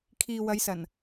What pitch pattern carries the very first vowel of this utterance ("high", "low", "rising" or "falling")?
low